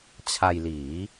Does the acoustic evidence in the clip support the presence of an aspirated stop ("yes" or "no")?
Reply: yes